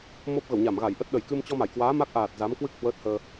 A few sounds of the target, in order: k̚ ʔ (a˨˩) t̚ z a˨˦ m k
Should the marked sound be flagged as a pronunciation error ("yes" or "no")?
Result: yes